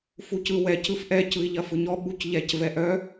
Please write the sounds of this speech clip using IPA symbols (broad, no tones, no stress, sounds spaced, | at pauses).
f u c ɯ w ɛ c ɯ f ʔ ɛ c ɯ i̯ ʎ ɐ f ɯ ɲ ɔ ɓ u c ʎ ɛ c v ɛ ʔ œ